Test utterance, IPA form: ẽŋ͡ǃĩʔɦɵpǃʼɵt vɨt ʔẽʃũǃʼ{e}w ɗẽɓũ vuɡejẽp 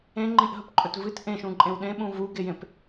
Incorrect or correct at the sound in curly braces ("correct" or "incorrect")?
incorrect